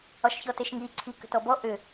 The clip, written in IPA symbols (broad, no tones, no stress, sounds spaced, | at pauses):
ɒ ʃ ç ɔ t e ʃ ŋ i ǀʰ i k ə̤ t ɔ b ɔ ʔ ʏ